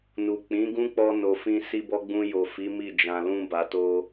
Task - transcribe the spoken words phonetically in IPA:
n u˨ k͡p ĩ˨˦ ɡ ũ˦ k͡p ɔ˧ n o˨ f ĩ˧ s i˧ b ɔ˦ ɡ͡b ũ˧ j o˨ f i˨˦ m i˦˨ d͡ʒ ã˨ l ũ˧ b a˨ t o˧

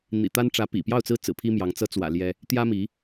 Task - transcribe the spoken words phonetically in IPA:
n̪ ḭ˨˩ t̪ a˥ n ʈ͡ʂ ä˧˥ p ḭ˨˩ p j ɑ˥˩ ʊ̯ t͡s ɹ̩˥ t͡s ɹ̩˨˩ pʰ i˥ m j ɑ˧˥ ŋ t͡s ɤ˧˥ t͡s w ä̰˨˩ l j ɛ˥ | t̪ j ä˥ m i˧˥

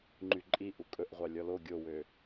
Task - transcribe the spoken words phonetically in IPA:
ŋ͡ǃ y ǃʼ i ʔ u kʼ ɵ ʔ ʁʷ ɑ lʲ ɔ l o ɡʲ o w ø

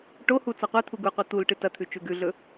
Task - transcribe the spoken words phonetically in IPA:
ʈ o h u t͡s a qʷ e t̪ʰ u ɡ u qʷ i t̪ u l ʈ ɨ t ɐ t̪ʰ ʉ t͡ʃ ʉ ɡ ʉ ɮ ɵ

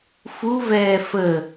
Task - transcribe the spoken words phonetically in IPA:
f u v ɛː f ə

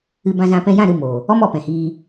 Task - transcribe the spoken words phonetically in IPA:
ɨ˧ b ã˧ z ã˧ p ɛ̃˧ j ã˦˨ ɾ ɨ˧ m oː˨ | ɔ˦ m ɔ˨ p ɛ̃˨ h iː˧

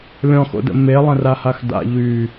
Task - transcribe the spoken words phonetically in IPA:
lʲ ɔ̃ x o̰ d ə̰ m e lˠ ə̃ r a h a x d a̰ ʎ y

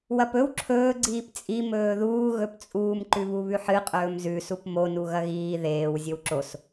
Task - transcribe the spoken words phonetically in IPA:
w ɐ p ɵ w ǁʰ ɵː ɡ͡ǀ iː p t͡sʼ i m ɵː ð uː ɣ ɵ p t͡sʼ uː m ǃ ʉ β u β ʉ ħ ɨ qʼ ɵː m z ʉ s u p m o n u ɣ ɐ ɣ iː ð eː w zʲ ɵ w ǁ o s

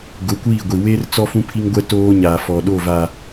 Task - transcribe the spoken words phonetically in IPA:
ɡ ʊ˨˦ kʷ iː˦˨ ɡʷ i˨ w eː˦ r t͡s ɔ˦ f ũ˦ pʰ i˦ ŋ ɡʷ ɛ˦ t oː˦ ɲ aː˨ f ɔ˨ ɗ o˦˨ v a˨

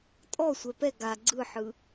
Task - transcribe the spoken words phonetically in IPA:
tʼ ɔ sʷ ɛ p ɛ ɡ a ɡ͡ǀ ɯ ħ ɯ

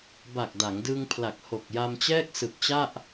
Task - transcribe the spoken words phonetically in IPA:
b a˨˩ k̚ d a˩˦ ŋ d ɯ˧ ŋ pʰ l a˨˩ k̚ h o˨˩ k̚ j a˧ m t͡ɕ ɛː˥˩ k̚ s ɯ˨˩ k̚ t͡ɕ a˥˩ ʔ

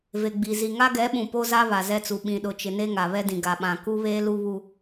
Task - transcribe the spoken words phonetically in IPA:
v e˨ ɡ͡b i˨ z i˨ ŋ a˦ ɡ ɛ˨˦ ɓ ũ˨ p o˦ z a˦ β a˨ z ɛ˦ t͡s u˨ ɓ ĩ˨ ɗ ʊ˨ t͡ʃ ɪ˨ n e˦ ŋ a˨ β ɛ˦ d ĩ˨ ɡ a˨ ɓ ã˨ k u˦ β eː˦ l u˦ β u˦

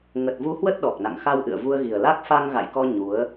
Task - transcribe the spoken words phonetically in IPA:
ŋ ə˨˩ t̚ v u˨˦ h w ə˦˥ t̚ ɗ ɔ˨˩ k̚ n a̰˧˨ ŋ x a˧ w ʔ ɨ̰˧˨ ə̯ v u˧ ə̯ ɣ i˨˩ ə̯ l a˦˥ k̚ f a˧ ŋ ɣ a̰˧˨ j k ɔ˧ ɲ u˨˦ ə̯

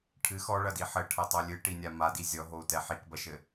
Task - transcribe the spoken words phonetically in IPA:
ʈʰ ɨ x ɔ ɭ ɐ d i ħ ɘ ʈʰ ɐ tˤ o lʲ ɨ ʈ i nʲ a m a d i zʲ ɔ ɦ o u̯ t ɛ ħ i k b ɐ ʃ ɘ

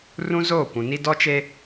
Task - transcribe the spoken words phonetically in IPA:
r ũ˦ z oː˦˨ kʷ ũ˨ n i˦ d ɔ˦ t͡ʃ e˦

